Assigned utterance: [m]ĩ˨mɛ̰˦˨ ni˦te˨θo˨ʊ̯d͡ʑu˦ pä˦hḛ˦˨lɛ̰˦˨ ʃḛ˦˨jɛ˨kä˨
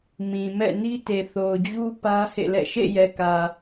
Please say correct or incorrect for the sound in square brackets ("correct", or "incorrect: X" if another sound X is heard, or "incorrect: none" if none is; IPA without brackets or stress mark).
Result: correct